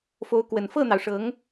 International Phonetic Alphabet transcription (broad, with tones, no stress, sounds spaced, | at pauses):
f o˧˥ ʊ̯ k w ə˨˩ n f ɤ˥˩ n̪ ɑ˩ ʊ̯ ʂ ɤ˧˥ ŋ